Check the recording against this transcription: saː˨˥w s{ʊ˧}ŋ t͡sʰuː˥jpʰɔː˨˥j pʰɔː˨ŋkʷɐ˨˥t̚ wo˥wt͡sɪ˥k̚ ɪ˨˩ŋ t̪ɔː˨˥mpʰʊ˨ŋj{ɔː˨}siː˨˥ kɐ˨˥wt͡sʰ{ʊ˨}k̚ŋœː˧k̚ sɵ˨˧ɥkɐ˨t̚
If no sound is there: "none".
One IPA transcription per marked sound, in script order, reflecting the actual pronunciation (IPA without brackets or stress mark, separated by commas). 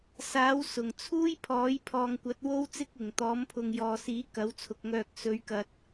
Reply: ʊ˨˩, ɔː˨, ʊ˨